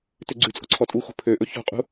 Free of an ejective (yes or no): no